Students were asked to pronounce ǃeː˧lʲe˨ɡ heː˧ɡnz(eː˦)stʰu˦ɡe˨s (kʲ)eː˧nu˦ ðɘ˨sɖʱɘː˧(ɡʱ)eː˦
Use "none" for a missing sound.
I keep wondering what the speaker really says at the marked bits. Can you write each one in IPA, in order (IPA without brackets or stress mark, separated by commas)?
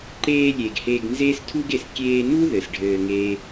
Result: eː˦, kʲ, ŋ